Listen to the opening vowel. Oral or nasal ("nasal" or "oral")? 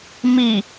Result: oral